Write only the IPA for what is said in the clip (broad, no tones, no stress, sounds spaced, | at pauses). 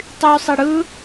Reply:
tˤ y sˤ i ɽ ɯ